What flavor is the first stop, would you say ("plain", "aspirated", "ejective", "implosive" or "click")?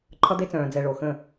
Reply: click